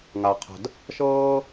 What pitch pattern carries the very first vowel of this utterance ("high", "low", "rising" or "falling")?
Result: low